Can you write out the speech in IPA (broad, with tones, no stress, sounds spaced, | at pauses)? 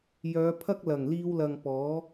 j œː˨˧ pʰ ɐ˥ k̚ l ɐ˨˩ ŋ l iː˧ w l ɐ˨ ŋ p ɔː˨˥